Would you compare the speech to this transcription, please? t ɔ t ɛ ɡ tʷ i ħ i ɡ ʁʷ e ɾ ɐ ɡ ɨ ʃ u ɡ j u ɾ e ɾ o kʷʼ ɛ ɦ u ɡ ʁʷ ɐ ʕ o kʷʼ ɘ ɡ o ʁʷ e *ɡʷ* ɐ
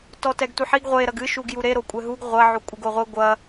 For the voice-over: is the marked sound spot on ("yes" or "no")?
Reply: yes